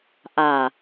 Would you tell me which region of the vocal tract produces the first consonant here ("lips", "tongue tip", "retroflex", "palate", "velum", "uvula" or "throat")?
throat